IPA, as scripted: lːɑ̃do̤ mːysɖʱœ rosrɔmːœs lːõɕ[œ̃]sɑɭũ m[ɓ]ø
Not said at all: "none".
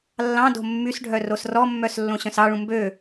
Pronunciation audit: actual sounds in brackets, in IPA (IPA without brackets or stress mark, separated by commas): œ̃, b